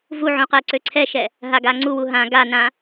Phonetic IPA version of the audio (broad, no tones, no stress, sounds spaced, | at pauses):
v u ʕ ũ q ɛ ǀ ø ǀʰ ɛ ʃ ɛ | ɦ a ɡ a ŋ͡ǀ u w u ɦ ã ɡ a n ã